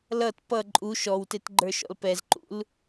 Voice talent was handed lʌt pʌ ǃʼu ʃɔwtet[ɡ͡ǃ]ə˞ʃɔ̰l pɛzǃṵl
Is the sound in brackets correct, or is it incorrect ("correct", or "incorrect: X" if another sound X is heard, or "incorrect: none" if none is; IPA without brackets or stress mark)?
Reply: correct